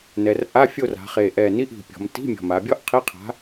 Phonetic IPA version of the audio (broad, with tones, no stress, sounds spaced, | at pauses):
n ɛ˩˧ r ʔ a˧˥˧ fʲ o˦˨ r a̤˩˧ χ e˨˩ ʔ ɛ˨˩ n i˧˥˧ ʔ i̤˨˩ pʲ ɔ̤˩˧ m t i̤˧˥˧ mʲ ɔ̤˨˩ m a˩˧ bʲ ɔ˥ ʔ qʰ i˧˥˧ qʰ a̤˨˥